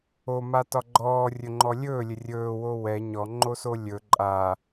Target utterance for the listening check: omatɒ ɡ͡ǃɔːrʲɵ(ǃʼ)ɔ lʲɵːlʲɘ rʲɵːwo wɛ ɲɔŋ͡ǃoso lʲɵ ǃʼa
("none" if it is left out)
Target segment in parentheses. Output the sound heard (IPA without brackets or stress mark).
ŋ͡ǃ